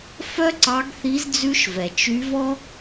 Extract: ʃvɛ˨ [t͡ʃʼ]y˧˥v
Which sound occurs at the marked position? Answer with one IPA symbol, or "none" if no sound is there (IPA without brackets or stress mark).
t͡ʃ